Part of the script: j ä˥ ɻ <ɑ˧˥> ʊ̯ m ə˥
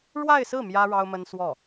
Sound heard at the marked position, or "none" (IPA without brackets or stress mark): ɑ˥